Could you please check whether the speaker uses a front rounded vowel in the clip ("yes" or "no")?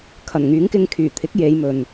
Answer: yes